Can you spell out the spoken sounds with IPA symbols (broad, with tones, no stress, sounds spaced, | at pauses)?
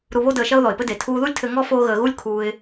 ɾ u˧ β o˥ d əː˧ ʃ ɐ˥ ʊ̯ ð ɔ˩ ɪ̯ p ɘ˥ d e˩ tʰ uː˧ ð u˥ lʲ tʰ ɘ˧ ŋ ɔ˥ f oː˥ ɣ əː˧ ɣ u˥ lʲ kʰ uː˧ ɪ̯